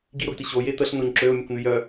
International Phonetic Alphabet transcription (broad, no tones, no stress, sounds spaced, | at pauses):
ɡ i ɾ o ɡ t i ɕ o j e t̪ ə ɬ n o ɲ ǁ ø ʊ̯ mʲ e kʷ n̪ y j œ